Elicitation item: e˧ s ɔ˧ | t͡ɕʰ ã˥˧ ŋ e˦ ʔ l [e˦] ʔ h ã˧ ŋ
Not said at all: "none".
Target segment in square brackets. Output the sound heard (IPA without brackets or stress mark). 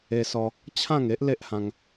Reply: e˦